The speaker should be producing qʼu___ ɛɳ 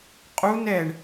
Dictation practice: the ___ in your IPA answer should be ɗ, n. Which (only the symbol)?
n